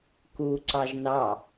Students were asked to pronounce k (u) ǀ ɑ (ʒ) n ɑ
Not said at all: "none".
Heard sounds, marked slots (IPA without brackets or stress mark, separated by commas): u, ʒ